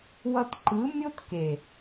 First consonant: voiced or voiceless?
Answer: voiced